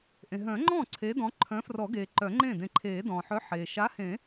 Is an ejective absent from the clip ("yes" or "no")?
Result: yes